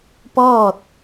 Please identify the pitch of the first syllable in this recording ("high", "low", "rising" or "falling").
falling